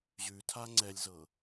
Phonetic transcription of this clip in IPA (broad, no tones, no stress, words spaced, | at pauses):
ʑʉtʰa ŋ͡ǀɛlʲzɤ